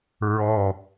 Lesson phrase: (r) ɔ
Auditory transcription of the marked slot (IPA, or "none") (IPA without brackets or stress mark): ɹ